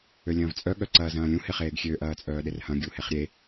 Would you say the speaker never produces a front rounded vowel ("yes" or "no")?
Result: no